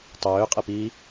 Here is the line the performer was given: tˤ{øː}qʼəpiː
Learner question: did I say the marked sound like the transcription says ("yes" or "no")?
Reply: yes